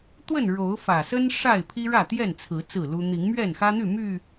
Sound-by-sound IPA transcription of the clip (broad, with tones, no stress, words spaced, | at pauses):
t̪wə˥˨nɻo˨˦ʊ̯fä˨˩sə˦n ʂa˥˨ɪ̯pʰi˦ ɻä˥˨t̪jɛ˥˨nt͡sʰɹ̩˨˦ t͡sɹ̩˥˨lu˦ n̪i˨˦ŋmɥɛ˥˨nxä˦n̪y˥˨ my˥˨